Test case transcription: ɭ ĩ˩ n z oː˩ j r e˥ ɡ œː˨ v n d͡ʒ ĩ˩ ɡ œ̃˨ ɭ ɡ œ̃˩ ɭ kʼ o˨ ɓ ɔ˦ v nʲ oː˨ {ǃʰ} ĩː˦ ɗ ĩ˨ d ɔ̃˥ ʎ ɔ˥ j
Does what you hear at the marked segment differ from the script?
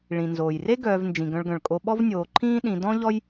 no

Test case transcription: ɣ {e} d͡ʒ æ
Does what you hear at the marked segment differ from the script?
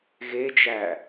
no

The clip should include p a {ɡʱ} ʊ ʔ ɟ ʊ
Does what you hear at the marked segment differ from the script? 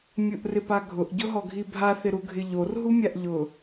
no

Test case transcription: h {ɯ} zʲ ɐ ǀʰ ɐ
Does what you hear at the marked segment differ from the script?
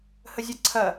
yes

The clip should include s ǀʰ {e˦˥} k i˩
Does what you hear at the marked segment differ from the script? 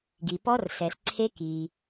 no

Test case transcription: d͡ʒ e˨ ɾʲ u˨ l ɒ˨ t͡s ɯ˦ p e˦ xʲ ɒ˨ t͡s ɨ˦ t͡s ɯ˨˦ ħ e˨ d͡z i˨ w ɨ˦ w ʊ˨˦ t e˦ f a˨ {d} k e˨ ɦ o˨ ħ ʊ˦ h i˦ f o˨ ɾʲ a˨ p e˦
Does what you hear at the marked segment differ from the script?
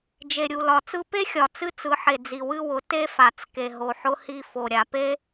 yes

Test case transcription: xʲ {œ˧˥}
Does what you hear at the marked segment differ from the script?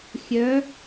no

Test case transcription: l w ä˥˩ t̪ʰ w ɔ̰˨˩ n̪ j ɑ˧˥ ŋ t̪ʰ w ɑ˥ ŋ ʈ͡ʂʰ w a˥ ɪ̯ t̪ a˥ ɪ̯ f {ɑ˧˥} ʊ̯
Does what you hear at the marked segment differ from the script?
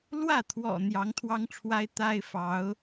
no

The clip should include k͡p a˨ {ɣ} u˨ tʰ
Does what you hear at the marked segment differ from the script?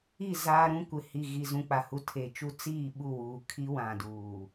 yes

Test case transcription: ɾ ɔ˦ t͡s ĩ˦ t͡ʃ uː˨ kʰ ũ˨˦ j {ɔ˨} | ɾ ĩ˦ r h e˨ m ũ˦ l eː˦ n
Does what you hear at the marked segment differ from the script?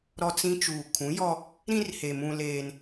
yes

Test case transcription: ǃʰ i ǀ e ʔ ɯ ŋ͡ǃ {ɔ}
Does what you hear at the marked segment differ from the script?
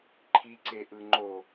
yes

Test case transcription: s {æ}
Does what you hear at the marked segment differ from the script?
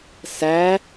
no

